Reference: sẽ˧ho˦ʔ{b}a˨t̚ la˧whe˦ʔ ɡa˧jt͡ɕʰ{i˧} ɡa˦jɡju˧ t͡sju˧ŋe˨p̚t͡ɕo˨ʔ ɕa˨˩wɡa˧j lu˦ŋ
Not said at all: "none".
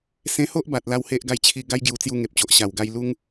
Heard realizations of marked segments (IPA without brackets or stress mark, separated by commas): b, i˧